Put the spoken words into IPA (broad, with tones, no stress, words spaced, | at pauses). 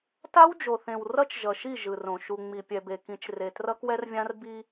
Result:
ta˦wd͡ʒo˨θẽ˨w rʌ˦t͡ʃʒʌ˨ʃi˦˨ ʒɯ˨rõ˨ ʃu˨ ŋ͡mi˨pʲɛ˨be˨kĩ˨˦t͡ʃ re˨ trʌ˦kwɛ˦rvʲã˦r bi˦